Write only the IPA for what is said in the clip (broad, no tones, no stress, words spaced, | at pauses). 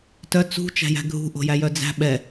tœ t͡sṳ t͡ʃæ̤jæ̤ɡʱṳ ʔo̤jæjœd͡zæ̤ ɓɛ